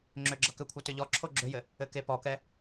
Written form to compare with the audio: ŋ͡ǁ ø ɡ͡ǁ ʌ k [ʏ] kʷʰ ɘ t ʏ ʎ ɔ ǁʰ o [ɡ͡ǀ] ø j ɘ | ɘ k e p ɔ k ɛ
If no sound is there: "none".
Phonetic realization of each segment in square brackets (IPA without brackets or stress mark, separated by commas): ʏ, ɡ͡ǁ